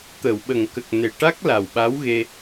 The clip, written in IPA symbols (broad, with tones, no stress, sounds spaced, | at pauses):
t̪ ə˨˩˨ w ɓ ə˨˩˨ ŋ k ə˨˩ k̚ n e˨˩ ʈ a˦˥ k̚ l a˨˩ w ɓ a˧˥ w ɣ e˧